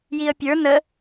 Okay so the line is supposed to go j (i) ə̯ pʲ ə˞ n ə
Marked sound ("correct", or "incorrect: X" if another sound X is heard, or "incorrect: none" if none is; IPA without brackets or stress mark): correct